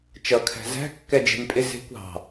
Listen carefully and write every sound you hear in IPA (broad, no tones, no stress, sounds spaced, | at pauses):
t͡ʃ ʌ kʰ æ̤ z æ̤ kː ɛ d͡ʒ e̤ nʲ pʼ ɪ z e̤ kʷ ɑ̤